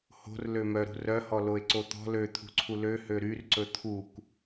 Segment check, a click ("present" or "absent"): present